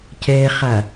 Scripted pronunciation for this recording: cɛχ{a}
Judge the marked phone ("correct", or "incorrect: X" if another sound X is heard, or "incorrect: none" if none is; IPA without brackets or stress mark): correct